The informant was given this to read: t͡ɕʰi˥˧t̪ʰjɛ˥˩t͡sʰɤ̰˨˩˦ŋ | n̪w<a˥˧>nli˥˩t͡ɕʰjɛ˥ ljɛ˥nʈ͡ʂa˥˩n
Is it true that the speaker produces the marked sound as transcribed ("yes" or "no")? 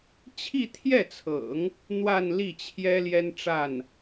yes